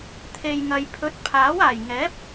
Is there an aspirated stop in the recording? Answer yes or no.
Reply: yes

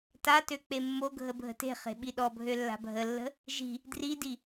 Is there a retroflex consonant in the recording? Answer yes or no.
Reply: no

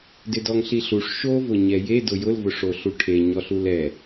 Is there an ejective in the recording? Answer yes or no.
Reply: no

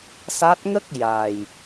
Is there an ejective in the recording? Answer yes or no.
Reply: no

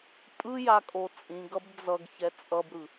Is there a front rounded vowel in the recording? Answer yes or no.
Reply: no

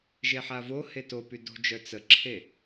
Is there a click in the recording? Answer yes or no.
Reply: yes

